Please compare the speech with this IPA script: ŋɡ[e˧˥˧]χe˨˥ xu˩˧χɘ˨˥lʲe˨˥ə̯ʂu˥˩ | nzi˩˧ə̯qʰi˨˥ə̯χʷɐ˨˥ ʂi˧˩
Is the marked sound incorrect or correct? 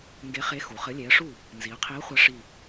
incorrect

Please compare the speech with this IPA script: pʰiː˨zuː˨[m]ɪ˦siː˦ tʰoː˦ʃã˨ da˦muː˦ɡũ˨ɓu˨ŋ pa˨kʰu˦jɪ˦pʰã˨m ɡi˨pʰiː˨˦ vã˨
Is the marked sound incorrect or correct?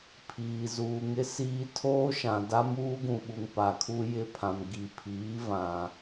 incorrect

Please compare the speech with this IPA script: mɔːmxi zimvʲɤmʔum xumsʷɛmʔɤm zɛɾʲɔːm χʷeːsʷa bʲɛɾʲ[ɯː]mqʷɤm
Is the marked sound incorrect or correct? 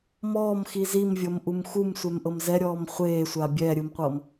incorrect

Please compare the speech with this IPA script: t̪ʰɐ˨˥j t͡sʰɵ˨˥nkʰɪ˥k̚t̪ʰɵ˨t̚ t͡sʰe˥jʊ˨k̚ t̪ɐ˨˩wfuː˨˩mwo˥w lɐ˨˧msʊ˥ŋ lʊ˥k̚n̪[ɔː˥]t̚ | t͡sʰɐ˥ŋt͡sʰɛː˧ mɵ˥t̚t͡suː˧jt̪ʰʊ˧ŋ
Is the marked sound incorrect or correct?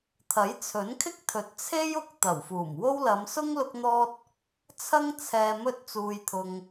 correct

